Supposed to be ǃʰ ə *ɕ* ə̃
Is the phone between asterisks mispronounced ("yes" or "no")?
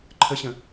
no